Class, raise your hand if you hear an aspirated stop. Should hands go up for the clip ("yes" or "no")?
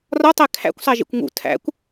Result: yes